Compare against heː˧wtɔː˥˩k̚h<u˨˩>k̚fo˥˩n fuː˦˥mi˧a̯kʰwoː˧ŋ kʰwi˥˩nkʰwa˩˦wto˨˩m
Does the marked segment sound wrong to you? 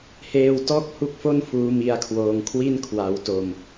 yes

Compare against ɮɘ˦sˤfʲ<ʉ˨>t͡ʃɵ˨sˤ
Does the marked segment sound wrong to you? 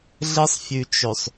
no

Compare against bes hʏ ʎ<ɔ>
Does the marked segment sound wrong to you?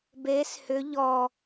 no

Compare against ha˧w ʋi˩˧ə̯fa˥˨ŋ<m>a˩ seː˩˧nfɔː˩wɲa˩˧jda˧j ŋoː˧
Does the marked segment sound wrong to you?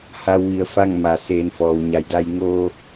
no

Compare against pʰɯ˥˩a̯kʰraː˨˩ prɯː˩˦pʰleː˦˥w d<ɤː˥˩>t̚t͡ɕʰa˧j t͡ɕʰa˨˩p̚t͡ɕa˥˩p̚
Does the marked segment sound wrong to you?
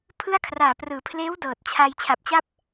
yes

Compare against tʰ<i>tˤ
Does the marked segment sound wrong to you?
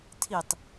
no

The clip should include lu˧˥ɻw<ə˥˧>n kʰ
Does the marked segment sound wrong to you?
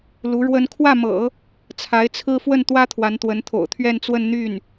yes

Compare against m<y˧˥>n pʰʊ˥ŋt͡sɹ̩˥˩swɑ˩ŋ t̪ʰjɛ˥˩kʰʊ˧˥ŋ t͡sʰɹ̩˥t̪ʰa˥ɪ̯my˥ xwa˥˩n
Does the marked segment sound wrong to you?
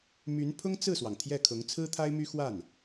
no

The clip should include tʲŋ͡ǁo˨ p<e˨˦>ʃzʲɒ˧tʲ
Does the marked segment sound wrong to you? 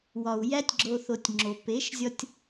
no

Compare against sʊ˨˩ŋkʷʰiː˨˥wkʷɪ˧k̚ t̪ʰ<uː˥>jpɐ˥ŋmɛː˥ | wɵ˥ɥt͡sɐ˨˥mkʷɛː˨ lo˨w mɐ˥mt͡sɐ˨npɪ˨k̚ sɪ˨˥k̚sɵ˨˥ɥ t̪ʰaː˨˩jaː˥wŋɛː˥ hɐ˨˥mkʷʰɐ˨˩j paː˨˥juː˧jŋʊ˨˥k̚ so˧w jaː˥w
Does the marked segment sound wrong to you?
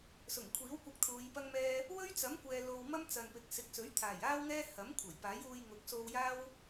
yes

